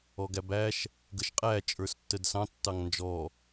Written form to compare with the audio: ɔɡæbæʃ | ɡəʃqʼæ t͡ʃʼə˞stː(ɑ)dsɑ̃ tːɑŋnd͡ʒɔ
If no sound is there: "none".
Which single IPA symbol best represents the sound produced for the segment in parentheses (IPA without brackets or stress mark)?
ə